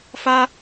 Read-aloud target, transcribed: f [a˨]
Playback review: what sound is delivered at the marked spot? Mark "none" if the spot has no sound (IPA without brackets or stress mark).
a˦